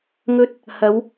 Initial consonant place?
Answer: velar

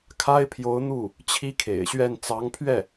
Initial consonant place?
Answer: velar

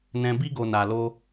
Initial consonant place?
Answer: alveolar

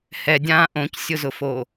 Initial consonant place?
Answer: glottal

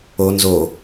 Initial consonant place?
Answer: alveolar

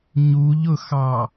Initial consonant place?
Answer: palatal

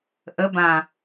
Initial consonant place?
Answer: glottal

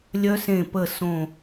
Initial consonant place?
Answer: alveolar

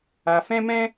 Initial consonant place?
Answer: labial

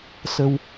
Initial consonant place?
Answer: alveolar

